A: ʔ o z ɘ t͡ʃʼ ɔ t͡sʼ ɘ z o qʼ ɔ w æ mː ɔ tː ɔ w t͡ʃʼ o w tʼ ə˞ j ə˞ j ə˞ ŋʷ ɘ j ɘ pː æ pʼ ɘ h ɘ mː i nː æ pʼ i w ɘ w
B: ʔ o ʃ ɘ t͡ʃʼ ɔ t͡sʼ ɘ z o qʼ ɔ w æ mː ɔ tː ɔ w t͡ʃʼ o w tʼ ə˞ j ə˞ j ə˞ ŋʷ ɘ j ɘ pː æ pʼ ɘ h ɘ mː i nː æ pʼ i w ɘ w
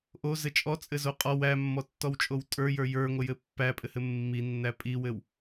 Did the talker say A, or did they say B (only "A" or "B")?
A